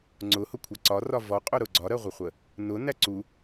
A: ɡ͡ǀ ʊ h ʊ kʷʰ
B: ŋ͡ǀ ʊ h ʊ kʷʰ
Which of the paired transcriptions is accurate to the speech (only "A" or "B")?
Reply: B